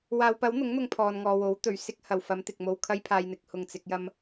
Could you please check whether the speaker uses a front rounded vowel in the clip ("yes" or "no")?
no